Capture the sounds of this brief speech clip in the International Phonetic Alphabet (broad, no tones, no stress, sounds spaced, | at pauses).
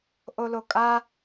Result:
ʔ o l o kʼ a